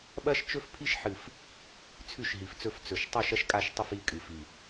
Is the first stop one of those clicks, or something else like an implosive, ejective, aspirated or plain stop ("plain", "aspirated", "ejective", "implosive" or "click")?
implosive